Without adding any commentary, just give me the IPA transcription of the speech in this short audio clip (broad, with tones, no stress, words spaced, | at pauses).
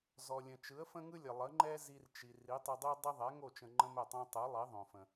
zɔ˩lʲə̃˩ t͡ʃɯ˩˥ə̯fə̃˥ŋɯ˥lʲə˩ lˠə˩˥ŋ͡ǃɛ˥ zi˧rt͡ʃi˩ ri˩˥tˤə˧dˤi˥ dˤə˥ðˤɛ˩˥ŋo˥˩ t͡ʃə̃˧ŋ͡ǃə̃˥mɛ˥˩tˤõ˥ tˤɯ˩˥lˠi˩˥ðˤõ˩fə̃˩